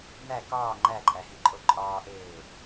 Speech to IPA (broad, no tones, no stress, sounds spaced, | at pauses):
n̪ æ k ɒː ŋ͡ǃ æ ǃʼ æ h i ǃʼ o ǃʼ ɒː ʔ eː